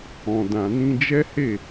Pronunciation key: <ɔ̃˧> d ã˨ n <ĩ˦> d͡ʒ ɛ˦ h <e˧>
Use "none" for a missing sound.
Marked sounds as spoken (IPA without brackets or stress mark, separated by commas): ɔ̃˨, ĩ˧, e˦˨